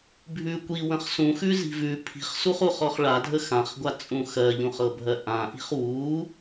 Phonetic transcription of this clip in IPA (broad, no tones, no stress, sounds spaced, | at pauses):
bʱ ʉ kʷ i w ə̃ χ s ũ x ʉ z i̤ v ʉ pʰ i̤ χ s u χ u χ ɔ χ ɭ a dʱ ə x ã χ ɡʷ a t͡sʼ ũ x ɜ ʎ ũ χ ɤ bʱ ɜ ʔ ã ʔ i̤ χ w u